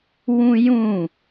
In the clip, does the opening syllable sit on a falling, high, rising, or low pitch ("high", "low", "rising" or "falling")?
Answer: high